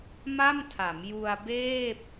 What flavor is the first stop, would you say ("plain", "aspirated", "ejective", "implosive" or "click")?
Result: aspirated